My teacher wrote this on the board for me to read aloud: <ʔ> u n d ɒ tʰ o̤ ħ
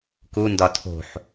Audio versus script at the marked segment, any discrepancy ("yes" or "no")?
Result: yes